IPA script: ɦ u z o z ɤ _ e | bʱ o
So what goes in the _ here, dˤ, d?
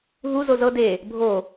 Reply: d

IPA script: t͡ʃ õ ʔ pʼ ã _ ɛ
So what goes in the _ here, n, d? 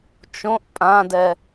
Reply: d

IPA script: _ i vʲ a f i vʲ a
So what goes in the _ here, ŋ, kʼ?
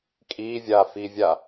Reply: kʼ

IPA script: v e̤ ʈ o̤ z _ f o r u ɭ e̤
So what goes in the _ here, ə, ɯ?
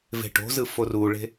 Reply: ɯ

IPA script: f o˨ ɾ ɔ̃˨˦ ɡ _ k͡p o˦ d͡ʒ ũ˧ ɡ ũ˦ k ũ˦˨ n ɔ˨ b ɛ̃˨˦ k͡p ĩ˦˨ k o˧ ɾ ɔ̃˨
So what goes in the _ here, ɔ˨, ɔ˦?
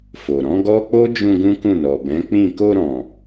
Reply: ɔ˦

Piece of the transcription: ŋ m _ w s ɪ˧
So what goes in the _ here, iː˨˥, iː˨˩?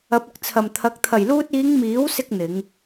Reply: iː˨˥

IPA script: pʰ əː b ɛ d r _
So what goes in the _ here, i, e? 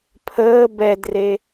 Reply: e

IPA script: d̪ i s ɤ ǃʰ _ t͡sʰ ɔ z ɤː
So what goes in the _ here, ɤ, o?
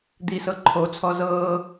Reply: o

